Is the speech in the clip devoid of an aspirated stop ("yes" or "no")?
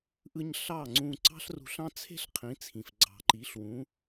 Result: no